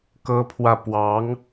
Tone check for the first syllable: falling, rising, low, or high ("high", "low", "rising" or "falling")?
high